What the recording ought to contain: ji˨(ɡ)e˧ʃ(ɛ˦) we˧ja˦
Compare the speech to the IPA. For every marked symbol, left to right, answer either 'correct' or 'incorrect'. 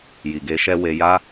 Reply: correct, correct

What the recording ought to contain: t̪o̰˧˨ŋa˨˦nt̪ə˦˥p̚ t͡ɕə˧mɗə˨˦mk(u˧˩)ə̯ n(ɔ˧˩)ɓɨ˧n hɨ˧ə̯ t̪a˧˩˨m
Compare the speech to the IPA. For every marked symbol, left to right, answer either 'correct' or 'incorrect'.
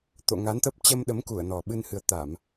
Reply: correct, incorrect: ɔ˨˩

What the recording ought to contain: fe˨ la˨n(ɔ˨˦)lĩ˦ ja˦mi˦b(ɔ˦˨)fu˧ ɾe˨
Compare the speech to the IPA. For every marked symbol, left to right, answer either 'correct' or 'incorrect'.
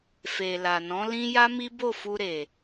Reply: incorrect: ɔ̃˨˦, incorrect: o˦˨

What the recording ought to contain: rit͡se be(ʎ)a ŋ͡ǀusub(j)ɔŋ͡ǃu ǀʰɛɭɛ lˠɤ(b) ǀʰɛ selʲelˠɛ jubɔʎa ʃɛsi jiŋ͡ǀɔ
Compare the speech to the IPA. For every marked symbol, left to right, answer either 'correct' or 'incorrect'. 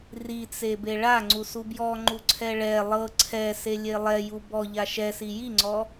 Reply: incorrect: ɭ, correct, incorrect: none

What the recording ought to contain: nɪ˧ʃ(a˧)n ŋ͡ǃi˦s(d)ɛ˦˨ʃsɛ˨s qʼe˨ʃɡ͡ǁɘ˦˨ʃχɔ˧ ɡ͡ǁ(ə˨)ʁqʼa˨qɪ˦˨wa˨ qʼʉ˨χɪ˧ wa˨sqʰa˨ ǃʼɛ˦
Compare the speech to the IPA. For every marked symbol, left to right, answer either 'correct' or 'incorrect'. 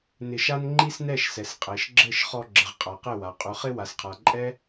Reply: incorrect: a˦, incorrect: n, correct

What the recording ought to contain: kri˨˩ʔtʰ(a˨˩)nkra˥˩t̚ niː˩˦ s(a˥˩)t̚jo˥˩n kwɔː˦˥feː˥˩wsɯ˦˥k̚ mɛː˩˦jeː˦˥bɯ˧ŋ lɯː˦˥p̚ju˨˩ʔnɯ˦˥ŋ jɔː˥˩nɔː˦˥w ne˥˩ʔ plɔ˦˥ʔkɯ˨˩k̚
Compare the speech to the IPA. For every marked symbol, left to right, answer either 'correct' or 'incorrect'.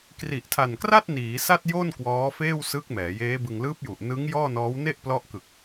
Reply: correct, correct

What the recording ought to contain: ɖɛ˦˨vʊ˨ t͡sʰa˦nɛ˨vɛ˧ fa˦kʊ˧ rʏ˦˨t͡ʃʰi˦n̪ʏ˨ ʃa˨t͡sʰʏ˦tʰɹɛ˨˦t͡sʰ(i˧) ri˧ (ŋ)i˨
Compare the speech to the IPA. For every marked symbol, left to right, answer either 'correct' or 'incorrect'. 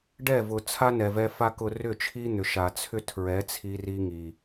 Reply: correct, correct

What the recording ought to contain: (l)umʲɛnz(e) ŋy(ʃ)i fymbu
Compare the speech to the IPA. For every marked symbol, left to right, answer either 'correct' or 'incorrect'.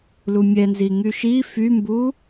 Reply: correct, incorrect: i, correct

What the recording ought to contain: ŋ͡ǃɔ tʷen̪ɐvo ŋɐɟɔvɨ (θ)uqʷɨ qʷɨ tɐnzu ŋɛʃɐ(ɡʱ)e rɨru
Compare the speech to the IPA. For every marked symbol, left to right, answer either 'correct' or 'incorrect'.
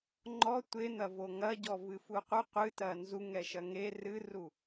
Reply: incorrect: f, incorrect: ŋ

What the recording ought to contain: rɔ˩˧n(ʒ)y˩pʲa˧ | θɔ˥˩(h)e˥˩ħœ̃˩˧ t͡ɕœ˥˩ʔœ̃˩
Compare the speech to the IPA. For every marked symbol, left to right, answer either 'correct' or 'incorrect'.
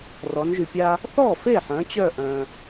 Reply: correct, incorrect: f

